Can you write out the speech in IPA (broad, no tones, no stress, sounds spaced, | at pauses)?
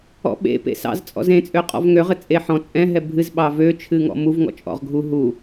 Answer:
ɔ̰ ɓ ḛ p ḛ s ɑ̰ z t͡sʼ ɔ̰ z ẽ t͡sʼ ø qʼ ɔ̰ v ŋ ø ʁ ɘ t͡sʼ e ħ ɔ̃ t͡sʼ ɛ̃ ɦ ɛ bʱ ɨ z ɓ ɑ v ø t͡ʃʰ ɨ ŋ ɔ̰ m u v ŋ ɔ̰ t͡ʃʼ ɔ̰ ʁ ɡʱ u ɦ u